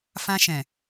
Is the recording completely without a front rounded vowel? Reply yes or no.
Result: yes